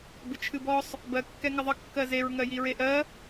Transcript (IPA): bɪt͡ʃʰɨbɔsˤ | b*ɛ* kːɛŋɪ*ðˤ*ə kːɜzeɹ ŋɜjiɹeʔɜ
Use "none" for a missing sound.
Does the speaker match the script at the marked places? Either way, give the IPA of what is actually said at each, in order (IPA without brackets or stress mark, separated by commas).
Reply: ɜ, ðˤ